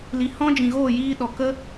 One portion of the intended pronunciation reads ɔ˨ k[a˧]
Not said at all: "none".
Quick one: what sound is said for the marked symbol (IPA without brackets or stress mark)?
ə˧